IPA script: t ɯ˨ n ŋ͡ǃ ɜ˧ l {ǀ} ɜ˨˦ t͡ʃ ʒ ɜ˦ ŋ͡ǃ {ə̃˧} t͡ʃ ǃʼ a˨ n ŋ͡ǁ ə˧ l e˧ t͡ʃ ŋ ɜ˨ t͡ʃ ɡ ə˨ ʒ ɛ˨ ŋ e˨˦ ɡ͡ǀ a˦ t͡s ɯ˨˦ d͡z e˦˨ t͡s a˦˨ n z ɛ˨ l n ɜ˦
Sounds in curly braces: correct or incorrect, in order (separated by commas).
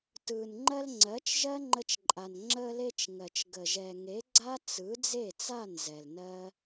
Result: incorrect, incorrect